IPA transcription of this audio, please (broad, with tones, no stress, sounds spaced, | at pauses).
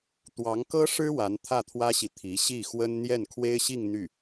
t̪ w ɑ˧˥ ŋ k ɤ˥ ʂ ɻ̩˥ w a˧˥ n t̪ʰ ä˥˩ t̪ʰ w ä˥ ɕ i˨ t̪ʰ i˧˥ ɕ i˥˩ x w ə˥ n n̪ j ɛ˥˩ n kʰ w e˥ ɪ̯ ɕ i˥˧ ŋ n̪ y˥˩